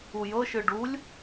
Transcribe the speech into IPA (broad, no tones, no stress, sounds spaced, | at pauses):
u j ɤ ʃ ɯ ɖ u lʲ